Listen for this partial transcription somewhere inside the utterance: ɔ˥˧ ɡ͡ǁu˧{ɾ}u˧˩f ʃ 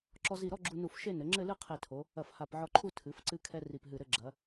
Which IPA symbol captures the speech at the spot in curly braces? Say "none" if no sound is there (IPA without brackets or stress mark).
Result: n